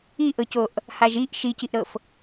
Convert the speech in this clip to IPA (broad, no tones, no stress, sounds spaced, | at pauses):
i ʔ ɤ c o ʔ | h a ʒ i ʔ ʃ i c i ʔ ɾ ɤ f